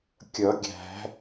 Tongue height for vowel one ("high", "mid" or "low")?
mid